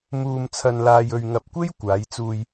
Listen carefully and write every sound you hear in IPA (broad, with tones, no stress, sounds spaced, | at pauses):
m uː˧ m t͡sʰ ɐ˧ n l aː˧ j ɵ˧ ɥ ŋ ɐ˧ p̚ kʷ e˥ j kʷ aː˨˧ j t͡s uː˧ j